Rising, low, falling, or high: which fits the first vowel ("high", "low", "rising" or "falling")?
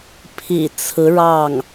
low